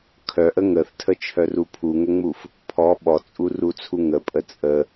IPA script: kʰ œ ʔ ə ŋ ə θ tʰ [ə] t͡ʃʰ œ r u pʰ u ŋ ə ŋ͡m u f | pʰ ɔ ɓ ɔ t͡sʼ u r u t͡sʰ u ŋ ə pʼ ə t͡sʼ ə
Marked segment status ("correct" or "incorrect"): correct